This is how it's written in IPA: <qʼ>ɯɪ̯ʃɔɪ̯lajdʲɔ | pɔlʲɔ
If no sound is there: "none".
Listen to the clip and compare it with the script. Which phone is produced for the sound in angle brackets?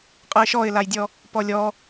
qʼ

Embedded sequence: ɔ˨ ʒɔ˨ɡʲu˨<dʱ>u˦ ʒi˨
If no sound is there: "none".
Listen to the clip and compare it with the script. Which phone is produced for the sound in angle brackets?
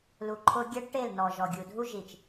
dʱ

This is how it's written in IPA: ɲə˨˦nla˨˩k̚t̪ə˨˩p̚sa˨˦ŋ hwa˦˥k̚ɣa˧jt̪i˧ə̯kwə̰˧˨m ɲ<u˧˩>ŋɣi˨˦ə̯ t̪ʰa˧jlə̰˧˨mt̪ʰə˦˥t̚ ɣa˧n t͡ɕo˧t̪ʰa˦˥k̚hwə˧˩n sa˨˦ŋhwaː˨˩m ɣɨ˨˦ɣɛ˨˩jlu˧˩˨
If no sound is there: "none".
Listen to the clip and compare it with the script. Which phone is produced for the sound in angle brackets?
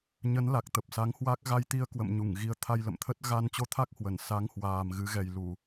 u˧˩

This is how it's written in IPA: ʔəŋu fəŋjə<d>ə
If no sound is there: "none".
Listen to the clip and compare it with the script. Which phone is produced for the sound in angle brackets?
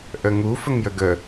ɡ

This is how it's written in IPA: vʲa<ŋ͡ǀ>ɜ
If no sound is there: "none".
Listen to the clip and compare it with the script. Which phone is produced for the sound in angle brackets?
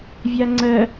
ŋ͡ǀ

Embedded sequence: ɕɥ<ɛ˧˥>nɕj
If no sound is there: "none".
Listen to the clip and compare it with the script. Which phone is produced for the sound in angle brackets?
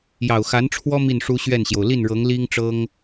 ɛ˥˩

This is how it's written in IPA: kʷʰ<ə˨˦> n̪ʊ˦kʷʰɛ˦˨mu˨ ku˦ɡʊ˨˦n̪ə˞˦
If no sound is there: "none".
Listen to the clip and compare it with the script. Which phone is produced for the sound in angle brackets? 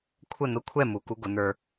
ə˦˨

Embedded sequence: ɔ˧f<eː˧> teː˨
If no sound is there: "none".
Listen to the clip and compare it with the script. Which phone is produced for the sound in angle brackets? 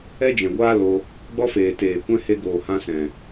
eː˨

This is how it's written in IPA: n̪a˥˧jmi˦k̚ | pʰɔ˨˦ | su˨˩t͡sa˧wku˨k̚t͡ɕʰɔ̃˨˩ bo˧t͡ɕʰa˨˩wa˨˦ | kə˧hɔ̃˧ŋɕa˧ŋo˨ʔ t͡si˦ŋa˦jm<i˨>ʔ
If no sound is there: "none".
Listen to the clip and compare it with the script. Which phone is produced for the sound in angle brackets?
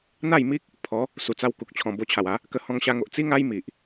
i˨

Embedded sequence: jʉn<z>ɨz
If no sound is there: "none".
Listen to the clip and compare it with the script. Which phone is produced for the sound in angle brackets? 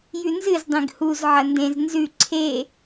z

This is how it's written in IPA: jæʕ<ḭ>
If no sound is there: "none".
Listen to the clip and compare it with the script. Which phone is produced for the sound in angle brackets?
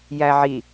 i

